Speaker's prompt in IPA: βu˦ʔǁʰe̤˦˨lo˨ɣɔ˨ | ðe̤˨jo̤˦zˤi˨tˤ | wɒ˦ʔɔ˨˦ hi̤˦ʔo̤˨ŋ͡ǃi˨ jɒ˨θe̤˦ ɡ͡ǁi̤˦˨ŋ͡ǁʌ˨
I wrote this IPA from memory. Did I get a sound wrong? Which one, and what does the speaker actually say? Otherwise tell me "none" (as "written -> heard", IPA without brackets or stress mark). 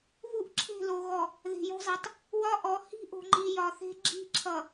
ŋ͡ǁ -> ǁʰ